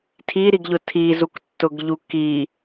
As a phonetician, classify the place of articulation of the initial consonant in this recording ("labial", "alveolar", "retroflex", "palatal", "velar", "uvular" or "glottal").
alveolar